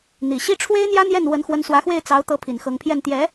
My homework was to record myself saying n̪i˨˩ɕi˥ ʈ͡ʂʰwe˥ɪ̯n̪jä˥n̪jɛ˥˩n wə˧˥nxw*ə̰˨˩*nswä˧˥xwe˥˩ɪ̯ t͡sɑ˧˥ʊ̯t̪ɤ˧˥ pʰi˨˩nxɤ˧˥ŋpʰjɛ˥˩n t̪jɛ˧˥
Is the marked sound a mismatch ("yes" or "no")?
yes